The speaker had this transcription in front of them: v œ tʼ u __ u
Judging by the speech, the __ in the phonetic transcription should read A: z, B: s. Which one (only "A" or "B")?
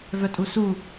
B